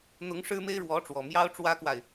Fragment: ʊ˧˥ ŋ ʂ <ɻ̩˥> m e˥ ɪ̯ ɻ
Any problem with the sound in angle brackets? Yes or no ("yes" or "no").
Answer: no